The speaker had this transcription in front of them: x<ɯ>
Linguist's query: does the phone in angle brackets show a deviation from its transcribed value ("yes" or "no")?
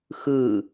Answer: no